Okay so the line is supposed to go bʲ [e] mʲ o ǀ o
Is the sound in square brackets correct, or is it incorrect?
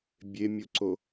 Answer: correct